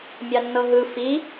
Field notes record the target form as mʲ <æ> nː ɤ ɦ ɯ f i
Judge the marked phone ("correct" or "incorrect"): incorrect